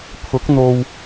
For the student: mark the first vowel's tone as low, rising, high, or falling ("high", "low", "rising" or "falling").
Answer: rising